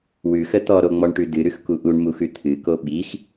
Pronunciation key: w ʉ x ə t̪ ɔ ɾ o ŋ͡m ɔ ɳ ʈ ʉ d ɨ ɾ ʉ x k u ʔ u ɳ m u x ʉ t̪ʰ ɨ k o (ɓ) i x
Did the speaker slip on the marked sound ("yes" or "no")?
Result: no